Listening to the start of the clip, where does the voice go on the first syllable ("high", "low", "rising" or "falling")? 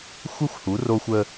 high